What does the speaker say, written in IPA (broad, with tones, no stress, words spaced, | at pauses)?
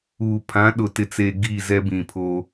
uː˨ pʰã˨˦ɗʊ˨tɪ˨t͡se˨ ɡi˦˨zɛ˦bĩ˨pʰo˦